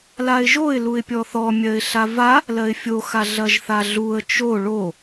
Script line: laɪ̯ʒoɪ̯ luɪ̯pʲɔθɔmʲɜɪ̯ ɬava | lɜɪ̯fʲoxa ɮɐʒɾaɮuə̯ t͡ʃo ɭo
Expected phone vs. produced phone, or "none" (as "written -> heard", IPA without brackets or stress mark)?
ɾ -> θ